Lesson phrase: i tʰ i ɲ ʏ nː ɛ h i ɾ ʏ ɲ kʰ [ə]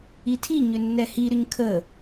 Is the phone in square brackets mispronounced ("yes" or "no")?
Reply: no